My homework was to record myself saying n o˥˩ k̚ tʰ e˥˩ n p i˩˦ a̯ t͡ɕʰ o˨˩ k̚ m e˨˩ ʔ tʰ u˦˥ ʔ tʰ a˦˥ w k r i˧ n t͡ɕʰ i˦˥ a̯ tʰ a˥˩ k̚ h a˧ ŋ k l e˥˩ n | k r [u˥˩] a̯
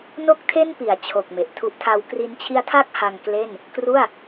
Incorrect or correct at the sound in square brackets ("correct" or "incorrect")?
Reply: correct